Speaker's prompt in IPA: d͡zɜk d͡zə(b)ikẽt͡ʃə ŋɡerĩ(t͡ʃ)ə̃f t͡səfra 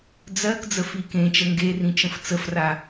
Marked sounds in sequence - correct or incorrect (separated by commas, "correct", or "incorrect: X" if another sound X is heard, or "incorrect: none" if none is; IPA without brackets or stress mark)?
incorrect: f, correct